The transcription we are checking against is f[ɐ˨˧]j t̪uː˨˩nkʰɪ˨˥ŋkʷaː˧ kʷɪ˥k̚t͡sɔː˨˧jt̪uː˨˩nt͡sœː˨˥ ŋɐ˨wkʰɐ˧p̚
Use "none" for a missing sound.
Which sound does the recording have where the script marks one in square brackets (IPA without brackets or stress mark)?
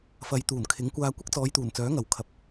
ɐ˨˧